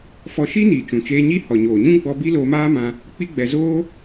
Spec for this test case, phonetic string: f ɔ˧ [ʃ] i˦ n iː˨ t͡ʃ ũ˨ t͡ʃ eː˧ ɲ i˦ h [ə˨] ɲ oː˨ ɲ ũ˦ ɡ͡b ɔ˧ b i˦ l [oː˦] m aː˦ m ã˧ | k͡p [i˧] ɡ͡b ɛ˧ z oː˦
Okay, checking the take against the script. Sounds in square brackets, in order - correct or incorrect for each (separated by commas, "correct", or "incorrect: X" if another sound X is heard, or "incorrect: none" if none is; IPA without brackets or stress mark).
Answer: correct, incorrect: ɔ˨, incorrect: oː˧, incorrect: i˦